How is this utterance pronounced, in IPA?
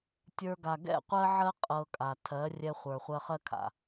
tʲə˞˧ɡa˨ ɡɛ̰˦˨qʷɜ˦ʕɜ˦ qʼɤ˧kʼa˨ tʰɜ˨˦ rʲɛ˧χʷə˞˨ χʷɜ˧χɜ˦kʰa̰˨

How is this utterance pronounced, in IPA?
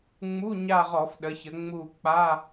ŋ͡mu˧˥˧ ɲa˦˨ʁɔ˧˩˧fɗə˩˧çə˩˧ ŋ͡mu˦˨ k͡pa˧˥˧

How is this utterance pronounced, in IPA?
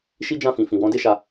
ʃi˦d͡ʒã˦˨fĩ˨ fĩ˨wɔ̃˧de˦ʃa˧

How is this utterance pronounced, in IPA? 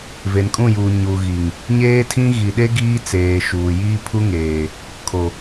ve˨nkʼũ˦˨juː˨ ɲu˨ɣi˨ŋ | ɲeː˦tʰĩ˦ ɣi˨ɗe˦ ɡiː˦t͡seː˨ʃuː˨ jiː˦pʰu˦ŋeː˨ | kʰo˨

